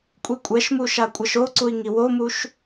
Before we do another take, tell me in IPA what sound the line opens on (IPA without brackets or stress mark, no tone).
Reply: kʷʼ